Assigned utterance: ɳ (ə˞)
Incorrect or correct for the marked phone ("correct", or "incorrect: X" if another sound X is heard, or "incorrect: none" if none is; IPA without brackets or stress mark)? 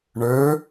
correct